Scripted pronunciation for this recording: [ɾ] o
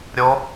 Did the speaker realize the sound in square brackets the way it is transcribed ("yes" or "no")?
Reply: no